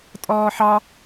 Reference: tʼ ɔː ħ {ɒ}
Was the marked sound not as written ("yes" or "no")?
yes